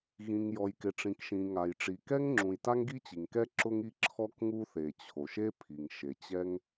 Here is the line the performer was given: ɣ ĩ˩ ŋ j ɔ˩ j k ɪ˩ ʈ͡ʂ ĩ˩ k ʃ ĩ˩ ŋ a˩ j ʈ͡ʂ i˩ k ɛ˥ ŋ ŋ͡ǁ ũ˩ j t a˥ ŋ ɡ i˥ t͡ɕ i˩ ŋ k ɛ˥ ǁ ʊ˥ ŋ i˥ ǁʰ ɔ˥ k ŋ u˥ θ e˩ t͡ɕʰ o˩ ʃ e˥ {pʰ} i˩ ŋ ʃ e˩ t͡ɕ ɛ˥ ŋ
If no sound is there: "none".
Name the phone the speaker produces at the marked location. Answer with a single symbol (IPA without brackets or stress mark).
pʰ